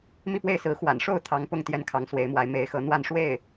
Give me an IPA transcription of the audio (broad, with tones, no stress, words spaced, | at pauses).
mi˥˧pwe˥˩ɪ̯sɹ̩˧˥ xwa̰˨˩nʂo˥˩ʊ̯ t̪ʰɑ˧˥ŋpʊ˥˩ŋ t̪jɛ˥nkʰɑ˧˥ŋswe˧˥ɪ̯mwa˧˥ɪ̯ me˧˥ɪ̯xɤ˧˥n̪wa˥˧n ʂwe˥˩ɪ̯